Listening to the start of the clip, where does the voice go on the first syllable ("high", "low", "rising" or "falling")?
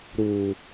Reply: low